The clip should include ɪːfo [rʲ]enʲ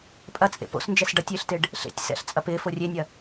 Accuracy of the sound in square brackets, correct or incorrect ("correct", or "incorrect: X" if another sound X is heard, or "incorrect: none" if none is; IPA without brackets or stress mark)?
correct